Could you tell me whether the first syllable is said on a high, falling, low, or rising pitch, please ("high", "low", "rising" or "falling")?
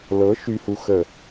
rising